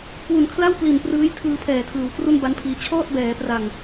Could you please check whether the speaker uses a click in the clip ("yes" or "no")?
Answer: no